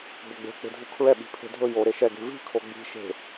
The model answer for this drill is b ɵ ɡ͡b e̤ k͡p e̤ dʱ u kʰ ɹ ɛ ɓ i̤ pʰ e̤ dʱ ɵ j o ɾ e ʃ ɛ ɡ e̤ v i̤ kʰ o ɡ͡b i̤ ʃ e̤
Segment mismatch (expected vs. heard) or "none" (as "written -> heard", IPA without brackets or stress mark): none